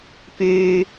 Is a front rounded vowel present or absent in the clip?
present